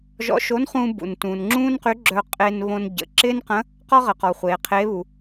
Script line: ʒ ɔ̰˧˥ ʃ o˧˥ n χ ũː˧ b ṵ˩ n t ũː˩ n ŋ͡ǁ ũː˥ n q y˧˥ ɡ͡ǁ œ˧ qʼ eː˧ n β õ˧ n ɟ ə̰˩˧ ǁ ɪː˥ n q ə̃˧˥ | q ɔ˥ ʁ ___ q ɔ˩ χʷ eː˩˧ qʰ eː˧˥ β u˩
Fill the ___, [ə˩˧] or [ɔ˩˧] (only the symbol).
ə˩˧